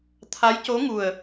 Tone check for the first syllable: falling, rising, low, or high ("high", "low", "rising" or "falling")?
rising